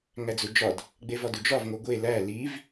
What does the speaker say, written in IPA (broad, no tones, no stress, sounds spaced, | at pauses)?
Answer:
ŋ æ d͡z u d͡ʒ ɒ d | ɡ͡b e v ɒ d u d͡ʒ ɒ v ŋ o ɡʷ e l æ l i v